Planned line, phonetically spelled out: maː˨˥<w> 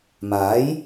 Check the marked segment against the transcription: incorrect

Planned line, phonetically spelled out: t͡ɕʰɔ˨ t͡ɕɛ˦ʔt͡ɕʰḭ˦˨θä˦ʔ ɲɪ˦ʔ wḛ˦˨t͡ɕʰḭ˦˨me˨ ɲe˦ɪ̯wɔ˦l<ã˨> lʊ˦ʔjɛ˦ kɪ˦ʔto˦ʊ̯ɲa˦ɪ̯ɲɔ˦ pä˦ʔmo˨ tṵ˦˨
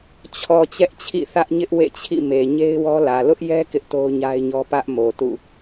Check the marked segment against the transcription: incorrect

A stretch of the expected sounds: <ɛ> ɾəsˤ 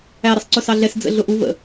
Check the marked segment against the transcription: incorrect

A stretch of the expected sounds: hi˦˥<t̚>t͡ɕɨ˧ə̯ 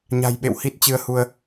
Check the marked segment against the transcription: correct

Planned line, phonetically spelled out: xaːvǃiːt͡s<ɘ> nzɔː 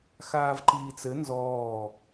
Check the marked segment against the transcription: correct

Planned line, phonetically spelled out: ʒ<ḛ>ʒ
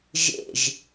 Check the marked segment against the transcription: correct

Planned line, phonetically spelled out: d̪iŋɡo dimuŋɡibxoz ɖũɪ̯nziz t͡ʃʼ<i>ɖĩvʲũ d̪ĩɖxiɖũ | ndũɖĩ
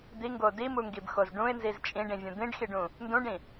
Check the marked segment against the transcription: incorrect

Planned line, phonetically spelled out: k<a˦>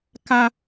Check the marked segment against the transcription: correct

